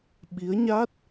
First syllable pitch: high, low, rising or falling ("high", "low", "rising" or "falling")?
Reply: rising